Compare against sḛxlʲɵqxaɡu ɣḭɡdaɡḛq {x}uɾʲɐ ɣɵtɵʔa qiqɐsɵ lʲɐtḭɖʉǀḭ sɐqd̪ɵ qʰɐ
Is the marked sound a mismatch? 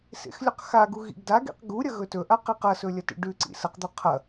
yes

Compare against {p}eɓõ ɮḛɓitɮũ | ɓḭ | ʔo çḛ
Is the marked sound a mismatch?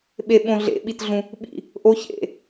yes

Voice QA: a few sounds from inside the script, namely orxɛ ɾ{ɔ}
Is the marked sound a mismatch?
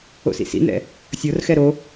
yes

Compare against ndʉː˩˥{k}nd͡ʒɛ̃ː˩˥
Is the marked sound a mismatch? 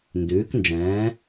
no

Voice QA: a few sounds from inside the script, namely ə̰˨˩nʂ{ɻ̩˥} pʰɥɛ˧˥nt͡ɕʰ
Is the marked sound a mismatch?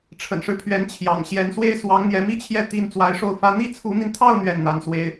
yes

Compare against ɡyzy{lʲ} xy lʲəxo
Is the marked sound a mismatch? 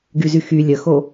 yes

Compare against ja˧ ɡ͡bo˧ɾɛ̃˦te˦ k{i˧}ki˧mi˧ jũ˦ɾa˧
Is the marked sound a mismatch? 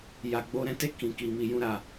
yes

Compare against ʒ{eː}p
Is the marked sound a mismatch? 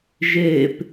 no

